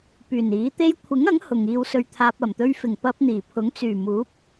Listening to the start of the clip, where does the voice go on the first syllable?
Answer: low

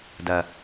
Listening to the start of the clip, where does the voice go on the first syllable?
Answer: low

